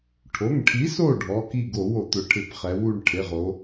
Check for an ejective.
absent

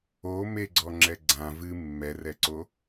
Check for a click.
present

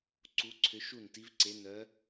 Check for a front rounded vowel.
present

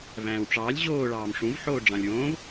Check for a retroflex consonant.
present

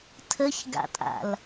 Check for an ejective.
present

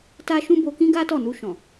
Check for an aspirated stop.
absent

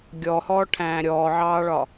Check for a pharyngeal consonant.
present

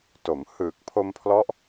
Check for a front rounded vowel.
absent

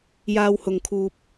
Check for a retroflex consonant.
absent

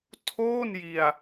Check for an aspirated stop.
present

